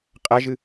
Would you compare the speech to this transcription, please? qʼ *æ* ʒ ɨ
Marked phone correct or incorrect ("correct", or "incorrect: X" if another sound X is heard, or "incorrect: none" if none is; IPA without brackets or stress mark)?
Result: correct